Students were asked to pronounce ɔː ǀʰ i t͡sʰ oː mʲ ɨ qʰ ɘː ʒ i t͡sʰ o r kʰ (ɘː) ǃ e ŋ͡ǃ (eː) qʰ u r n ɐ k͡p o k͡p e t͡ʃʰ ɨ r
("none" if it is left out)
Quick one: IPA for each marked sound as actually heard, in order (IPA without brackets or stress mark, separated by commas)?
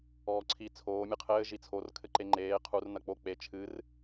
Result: ɘ, eː